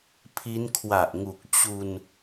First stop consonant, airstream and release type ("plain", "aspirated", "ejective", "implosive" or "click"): aspirated